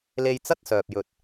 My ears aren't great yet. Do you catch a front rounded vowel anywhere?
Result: yes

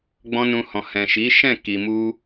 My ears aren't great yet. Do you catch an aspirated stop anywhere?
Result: no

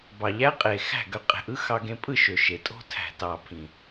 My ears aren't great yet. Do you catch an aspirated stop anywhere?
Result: yes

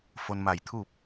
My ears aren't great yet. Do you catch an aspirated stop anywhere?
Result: yes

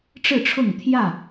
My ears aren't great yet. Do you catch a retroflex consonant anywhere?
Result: yes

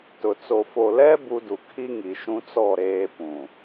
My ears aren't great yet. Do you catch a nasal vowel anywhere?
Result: yes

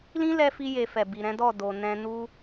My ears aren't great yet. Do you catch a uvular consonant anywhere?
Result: no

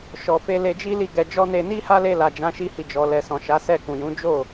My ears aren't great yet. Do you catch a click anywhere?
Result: no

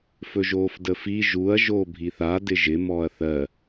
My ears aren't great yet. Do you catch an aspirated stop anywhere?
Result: no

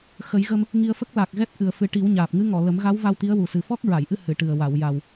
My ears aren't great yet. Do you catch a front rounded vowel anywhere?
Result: no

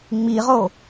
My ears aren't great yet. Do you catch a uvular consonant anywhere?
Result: yes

